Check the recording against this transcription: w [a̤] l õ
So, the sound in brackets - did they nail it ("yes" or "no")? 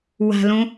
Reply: yes